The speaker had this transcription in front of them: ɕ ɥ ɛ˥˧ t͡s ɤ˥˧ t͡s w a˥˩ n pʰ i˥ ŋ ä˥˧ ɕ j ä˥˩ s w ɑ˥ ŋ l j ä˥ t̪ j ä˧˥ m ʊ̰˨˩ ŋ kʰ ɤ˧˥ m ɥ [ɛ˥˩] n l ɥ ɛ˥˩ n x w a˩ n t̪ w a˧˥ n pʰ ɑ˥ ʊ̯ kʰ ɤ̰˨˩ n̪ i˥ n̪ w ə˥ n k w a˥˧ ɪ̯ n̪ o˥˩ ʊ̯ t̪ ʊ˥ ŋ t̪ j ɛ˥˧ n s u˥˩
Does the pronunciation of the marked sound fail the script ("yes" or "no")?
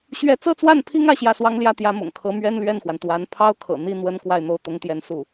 yes